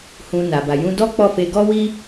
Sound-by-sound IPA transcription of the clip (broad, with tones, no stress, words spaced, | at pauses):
hũ˧na˨ ba˨jũ˧dɔ˦ k͡pɔ˦˨fe˧ ɡɔ˦wi˦